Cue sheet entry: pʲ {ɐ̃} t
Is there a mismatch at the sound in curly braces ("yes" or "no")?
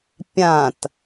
yes